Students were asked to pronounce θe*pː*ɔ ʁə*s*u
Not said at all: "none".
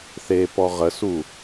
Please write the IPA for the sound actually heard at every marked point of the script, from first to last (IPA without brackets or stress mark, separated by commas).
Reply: p, s